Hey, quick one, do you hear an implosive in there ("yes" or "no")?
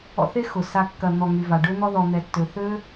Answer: no